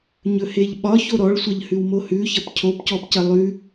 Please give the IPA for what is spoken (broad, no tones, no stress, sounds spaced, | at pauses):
ɲ ɵ h e ʎ ɓ ɒ ç o ɾ ɔ ɭ sʷ ɐ ʎ h ʉ w m o h ʉ ç ɐ p cʰ o p c ɔ p c ɐ lˠ ʉ